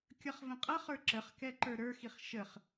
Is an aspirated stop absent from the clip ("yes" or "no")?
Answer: yes